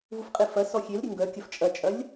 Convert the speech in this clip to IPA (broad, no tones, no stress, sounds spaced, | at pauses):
v u f qʼ e f ɐ s ɔ xʲ e l ɾʲ ɘ ŋ ɡ œ kʲ ɐ f t͡ʃʼ ɐ t͡ʃʼ ɐ lʲ